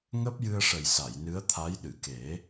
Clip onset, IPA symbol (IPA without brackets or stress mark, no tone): ŋ